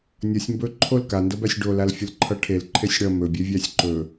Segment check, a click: present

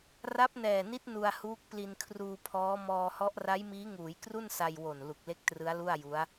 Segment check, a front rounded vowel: absent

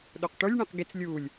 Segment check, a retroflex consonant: present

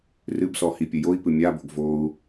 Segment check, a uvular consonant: absent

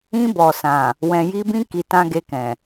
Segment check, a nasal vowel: present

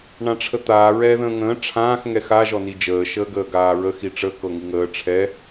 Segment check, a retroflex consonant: present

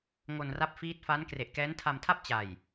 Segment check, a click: absent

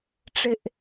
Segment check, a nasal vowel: absent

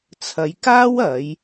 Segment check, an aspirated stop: present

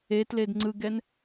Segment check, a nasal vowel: absent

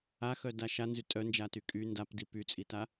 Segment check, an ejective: present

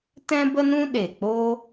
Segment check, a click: absent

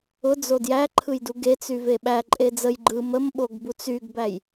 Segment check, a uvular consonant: absent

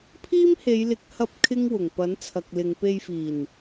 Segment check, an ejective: absent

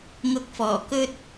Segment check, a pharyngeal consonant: absent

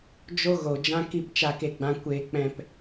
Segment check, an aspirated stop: absent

